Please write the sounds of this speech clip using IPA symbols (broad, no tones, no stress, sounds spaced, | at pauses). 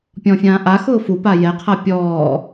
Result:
pʲ ɔ̃ fʲ ãː ʔ a x ʊː f u p a j ɛ qʰ a pʲ ɔː